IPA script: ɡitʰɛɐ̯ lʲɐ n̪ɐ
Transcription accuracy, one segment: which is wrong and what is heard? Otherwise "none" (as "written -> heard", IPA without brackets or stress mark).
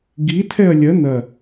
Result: none